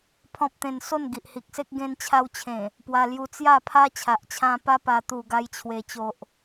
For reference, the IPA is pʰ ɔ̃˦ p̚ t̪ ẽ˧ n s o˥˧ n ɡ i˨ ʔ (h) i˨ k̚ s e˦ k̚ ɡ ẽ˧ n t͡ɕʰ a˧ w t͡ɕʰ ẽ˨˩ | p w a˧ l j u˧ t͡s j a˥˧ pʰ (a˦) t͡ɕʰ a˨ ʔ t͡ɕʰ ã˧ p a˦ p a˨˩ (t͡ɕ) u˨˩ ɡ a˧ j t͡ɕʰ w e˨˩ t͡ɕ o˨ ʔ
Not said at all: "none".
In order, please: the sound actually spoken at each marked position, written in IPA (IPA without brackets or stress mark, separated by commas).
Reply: h, a˦, t̪